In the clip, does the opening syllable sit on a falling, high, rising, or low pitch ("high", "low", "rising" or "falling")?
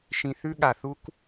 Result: low